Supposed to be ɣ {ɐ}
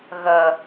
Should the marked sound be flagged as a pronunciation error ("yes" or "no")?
no